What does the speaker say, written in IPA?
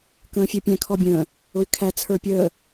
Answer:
kə̃ːfʲɛpʲæ̃ kʰɔbʲə̃ː | ʊy̯kʰæ t͡sʰə˞pʲəː

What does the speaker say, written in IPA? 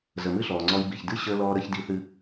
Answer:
zə˩mɨ˥ɬɔː˩ŋ͡ǀɔ˧j bi˩çdɨ˥ ɕəː˧lɔː˧ɾə˧ç di˧θɨ˧

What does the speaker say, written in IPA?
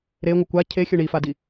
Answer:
ɾeŋʷʌ kʷa cʰexʲɵ ɳifadi

